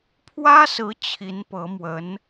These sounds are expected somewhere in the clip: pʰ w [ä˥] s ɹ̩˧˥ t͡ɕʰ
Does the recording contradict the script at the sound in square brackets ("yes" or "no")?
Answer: no